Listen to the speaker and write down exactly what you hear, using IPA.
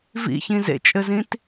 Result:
v ḭ ç ĩ z ḛ t͡ʃʼ ɘ z ĩ t

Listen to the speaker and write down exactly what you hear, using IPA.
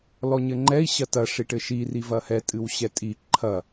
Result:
l ɔ ɲ ɘ ŋ͡ǃ ɛ i̯ ɕ ɐ t ɐ ʂ i ʈ ɘ ʃ i r i v ɐ h ɛ tʼ ɨ w ɕ ɛ tʼ i ǃʰ ɐ

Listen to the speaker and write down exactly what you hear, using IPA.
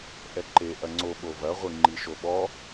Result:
ʔ ɛ ǃ e ʔ ɐ ŋ͡ǀ o ɓ o v ɐ ʁʷ i ŋ͡ǃ i ʃ o ɓ ɔ

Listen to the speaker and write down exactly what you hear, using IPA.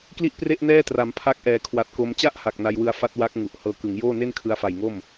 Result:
k l i˥˩ ʔ p r e˥˩ ʔ n ɛː˥˩ t r a˩˦ m pʰ a˦˥ k̚ ʔ ɛː˩˦ kʰ w a˨˩ t̚ k o˧ m t͡ɕ a˥˩ ʔ h a˨˩ k̚ n a˧ j w ɯ˧ a̯ f a˦˥ t̚ w a˦˥ k̚ ŋ u˨˩ ʔ h ɤː˧ k ɯ˩˦ ŋ j oː˥˩ n e˥˩ n kʰ ɯ˧ a̯ f a˨˩ j ŋ o˥˩ m

